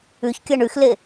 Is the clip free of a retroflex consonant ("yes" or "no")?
no